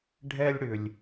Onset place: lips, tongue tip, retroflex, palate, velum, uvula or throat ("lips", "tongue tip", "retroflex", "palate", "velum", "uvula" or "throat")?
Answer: retroflex